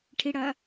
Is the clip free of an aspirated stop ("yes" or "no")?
no